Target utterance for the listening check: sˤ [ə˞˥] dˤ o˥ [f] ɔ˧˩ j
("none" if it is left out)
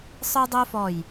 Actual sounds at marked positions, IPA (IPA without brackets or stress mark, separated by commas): ə˞˥, f